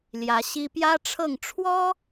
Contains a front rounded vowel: no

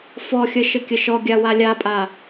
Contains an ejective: yes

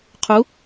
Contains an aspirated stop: yes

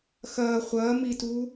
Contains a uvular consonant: yes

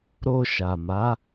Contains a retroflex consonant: no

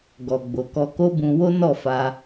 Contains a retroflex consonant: no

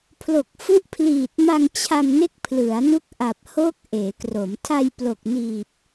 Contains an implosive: no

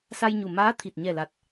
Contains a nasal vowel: no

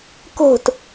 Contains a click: no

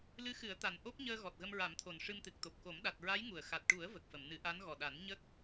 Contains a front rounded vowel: no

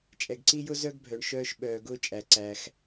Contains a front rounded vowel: yes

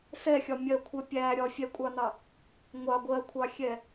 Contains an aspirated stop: yes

